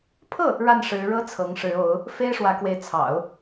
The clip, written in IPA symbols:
pʰ ɤ˥˩ | ɻ a˥˩ n ʂ ɻ̩˧˥ ɻ ɤ˥ t͡sʰ ɤ˧˥ ŋ ʂ ɻ̩˧˥ o˧˥ ʊ̯ | f e˥ ɪ̯ ʂ w ä˧˥ k w e˧˥ ɪ̯ t͡sʰ ɑ̰˨˩˦ ʊ̯

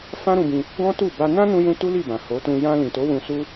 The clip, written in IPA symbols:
f ã˦ ɾ ũ˧ b ĩ˧ | ɡ ɔ̃˦ t u˦˨ b a˧ n ã˦ n ũ˦ j ũ˦ t u˦ l i˦˨ b ã˨ h o˨˦ t ũ˧ j ã˧ l ĩ˨ t o˨˦ w ũ˧ s u˦

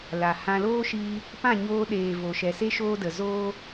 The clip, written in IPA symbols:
l a˨ h ã˦ l oː˦ ʃ iː˧ | p ã˦˨ ɲ oː˧ ɗ eː˨ v o˨ ʃ ɛ˨ s e˦ ʃ oː˦ d ə˨ z oː˦

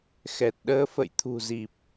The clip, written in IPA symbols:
x ɛ˨˩ t̚ ɗ əː˧ f ə̰˧˨ j t̪ʰ ṳ˨˩ z i˨˩ p̚

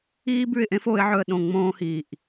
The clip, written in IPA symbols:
iː˥ b ʉ˥˨ ɪ̯ ʔ ẽ˥ f o˧˥ ɪ̯ ʕ ɵ˥˨ ə̯ ɗ õ˥˨ ŋ͡m õː˥ h iː˧˩ ʔ

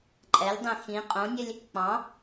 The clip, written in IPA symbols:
ǃʼ ɛ lʲ dˤ ẽ x ĩ qʼ õ nʲ ɘ lʲ | k͡p ɑ̃

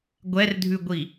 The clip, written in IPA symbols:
ɡʷ ɛ r dʱ ʉ ɡʷ i

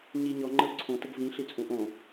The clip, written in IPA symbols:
ɲ i ɲ ɔ ŋ͡ǃ ə ʊ̯ ǀʰ õ t ə ɡ v ĩ ɬ i t͡sʼ ũ ʔ õ

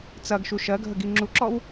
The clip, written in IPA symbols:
t͡s ɐ ɡ ʃ u ʃ ɜ ɡʱ ə ɡ i ŋ͡ǁ u ǁ ɔ w

